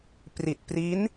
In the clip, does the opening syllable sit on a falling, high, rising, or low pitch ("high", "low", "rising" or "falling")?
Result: low